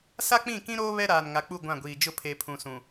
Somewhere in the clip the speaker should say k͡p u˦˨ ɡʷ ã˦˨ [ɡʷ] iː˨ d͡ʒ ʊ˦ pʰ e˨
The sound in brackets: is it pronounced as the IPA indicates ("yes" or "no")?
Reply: yes